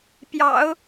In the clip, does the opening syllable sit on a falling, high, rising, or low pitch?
low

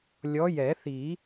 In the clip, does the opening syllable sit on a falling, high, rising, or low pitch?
rising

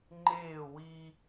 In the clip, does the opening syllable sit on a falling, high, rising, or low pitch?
falling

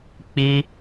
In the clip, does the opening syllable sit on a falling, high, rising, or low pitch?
high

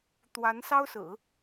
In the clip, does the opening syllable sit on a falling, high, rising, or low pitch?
rising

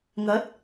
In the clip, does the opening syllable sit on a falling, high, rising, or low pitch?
rising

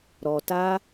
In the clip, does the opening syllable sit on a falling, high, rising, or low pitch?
low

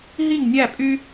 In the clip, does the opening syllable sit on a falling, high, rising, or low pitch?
falling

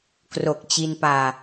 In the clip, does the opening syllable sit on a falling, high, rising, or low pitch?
low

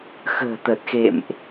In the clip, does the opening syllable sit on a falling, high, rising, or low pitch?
low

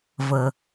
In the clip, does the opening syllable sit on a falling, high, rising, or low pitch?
low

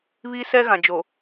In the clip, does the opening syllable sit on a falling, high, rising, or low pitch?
high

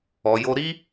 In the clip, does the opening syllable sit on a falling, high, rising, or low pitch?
low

